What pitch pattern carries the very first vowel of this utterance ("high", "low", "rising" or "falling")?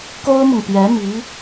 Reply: high